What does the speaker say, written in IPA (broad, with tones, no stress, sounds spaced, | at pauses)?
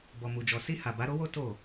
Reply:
b ɔ˨ m u˨ d͡ʒ ɔ˨ s i˧ h a˨ b a˨˦ ɾ o˦ w o˦ t o˦˨